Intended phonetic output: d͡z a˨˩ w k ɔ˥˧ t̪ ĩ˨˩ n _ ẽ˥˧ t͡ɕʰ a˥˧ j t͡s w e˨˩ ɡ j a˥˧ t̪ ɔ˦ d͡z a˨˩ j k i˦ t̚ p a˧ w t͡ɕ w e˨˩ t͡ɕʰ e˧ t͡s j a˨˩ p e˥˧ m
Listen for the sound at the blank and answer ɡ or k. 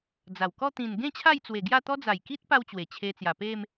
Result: ɡ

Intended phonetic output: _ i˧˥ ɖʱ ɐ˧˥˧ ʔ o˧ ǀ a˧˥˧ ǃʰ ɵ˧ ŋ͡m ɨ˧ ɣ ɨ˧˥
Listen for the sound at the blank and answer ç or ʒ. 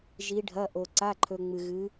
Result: ʒ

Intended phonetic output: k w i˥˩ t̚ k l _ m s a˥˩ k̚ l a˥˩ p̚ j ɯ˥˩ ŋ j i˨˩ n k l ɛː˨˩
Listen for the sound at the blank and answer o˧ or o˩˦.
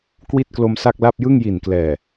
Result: o˧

